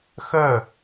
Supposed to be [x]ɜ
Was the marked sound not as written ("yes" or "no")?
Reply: no